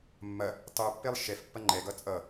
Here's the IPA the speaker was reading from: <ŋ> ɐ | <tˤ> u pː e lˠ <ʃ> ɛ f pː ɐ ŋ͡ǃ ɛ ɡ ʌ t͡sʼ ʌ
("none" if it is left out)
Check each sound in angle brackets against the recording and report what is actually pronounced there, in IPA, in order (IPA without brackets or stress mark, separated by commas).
mː, tˤ, ʃ